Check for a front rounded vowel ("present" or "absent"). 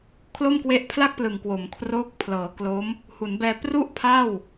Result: absent